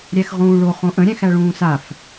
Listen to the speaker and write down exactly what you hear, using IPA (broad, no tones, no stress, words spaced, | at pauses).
ɾʲæxʁũːɭo χõʔə̃ ɾʲæ̃xæɭũːsaf